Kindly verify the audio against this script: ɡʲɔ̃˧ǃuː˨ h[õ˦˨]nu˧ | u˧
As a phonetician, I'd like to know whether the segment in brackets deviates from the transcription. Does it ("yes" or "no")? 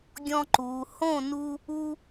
no